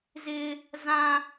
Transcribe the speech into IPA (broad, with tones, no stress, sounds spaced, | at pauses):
z ɪ˦ | z ã˦